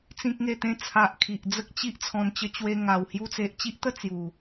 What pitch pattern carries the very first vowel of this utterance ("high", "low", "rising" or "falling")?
high